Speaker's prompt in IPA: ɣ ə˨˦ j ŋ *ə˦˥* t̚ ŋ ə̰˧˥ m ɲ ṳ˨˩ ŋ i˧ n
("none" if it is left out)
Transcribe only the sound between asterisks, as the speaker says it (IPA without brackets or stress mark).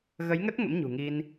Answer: ə˦˥